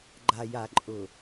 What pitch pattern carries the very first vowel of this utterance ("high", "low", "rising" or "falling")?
low